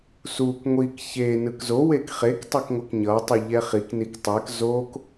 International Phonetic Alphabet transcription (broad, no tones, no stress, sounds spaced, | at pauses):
s u k ŋʷ i k ç e n ɯ k z o w e k χ e k tˤ ɛ k ŋʷ ʌ k ɲ ʌ tˤ u ʎ ɛ χ i k n i k tˤ ɛ k z o k